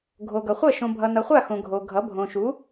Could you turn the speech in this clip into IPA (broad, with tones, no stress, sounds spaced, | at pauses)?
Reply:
ɡʱ o˨ ɡ ʌ˨ χʷ ʌ˥˩ ʃ õ˨ bʱ ʌ˨ n ʌ˨ χʷ a˥˩ x õ˨ ɡʱ o˨ ɡʱ ʌ˩˥ bʱ õ˨ ʃ u˩˥